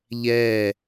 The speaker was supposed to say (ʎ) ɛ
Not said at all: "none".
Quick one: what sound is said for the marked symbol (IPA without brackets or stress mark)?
ʎ